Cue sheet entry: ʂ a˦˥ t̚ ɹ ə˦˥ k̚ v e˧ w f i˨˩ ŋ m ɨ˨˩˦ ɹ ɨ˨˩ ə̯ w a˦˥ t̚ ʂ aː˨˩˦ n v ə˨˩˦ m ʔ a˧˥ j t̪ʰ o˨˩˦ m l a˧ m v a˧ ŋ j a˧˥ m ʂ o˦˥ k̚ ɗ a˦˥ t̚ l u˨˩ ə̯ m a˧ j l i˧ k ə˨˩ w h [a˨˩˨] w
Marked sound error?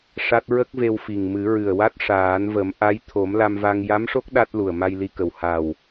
yes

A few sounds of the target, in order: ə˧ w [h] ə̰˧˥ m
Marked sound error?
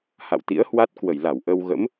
yes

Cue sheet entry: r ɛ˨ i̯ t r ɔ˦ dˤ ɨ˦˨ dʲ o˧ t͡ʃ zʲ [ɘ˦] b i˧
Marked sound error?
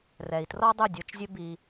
no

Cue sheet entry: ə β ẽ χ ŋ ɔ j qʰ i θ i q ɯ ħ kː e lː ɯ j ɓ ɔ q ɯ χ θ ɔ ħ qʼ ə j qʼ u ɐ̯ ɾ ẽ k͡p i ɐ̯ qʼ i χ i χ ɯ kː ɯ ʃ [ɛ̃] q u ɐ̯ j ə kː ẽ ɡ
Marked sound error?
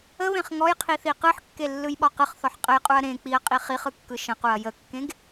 yes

